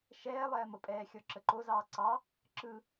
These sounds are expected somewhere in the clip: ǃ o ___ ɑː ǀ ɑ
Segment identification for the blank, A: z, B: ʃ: A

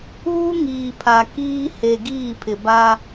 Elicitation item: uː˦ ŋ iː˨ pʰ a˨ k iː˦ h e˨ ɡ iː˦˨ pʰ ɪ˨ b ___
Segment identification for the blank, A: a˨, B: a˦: B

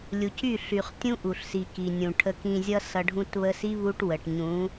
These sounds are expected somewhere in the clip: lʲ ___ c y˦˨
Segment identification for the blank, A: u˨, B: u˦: A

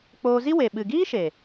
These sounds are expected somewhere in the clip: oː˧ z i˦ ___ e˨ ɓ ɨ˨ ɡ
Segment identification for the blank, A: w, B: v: A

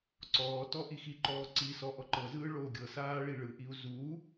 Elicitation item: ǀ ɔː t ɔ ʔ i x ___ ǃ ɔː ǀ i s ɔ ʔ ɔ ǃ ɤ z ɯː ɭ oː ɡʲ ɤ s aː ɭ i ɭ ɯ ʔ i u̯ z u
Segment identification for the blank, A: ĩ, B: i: B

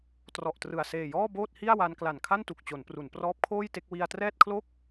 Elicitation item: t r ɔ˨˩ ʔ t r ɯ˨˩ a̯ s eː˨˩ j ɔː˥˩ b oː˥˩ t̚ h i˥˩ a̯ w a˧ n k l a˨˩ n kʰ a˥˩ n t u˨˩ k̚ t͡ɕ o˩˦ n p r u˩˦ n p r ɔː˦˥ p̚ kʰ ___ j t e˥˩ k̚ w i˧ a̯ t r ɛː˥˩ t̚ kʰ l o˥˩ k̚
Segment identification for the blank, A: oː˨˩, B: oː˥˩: B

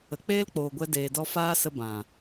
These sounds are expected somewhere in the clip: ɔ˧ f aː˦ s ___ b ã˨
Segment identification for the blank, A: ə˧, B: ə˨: A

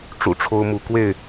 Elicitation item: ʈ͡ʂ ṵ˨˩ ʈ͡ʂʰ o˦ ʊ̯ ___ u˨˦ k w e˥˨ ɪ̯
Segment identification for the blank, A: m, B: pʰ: A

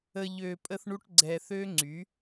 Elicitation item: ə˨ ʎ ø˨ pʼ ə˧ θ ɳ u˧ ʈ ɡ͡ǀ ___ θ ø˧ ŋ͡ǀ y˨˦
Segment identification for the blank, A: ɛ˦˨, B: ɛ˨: B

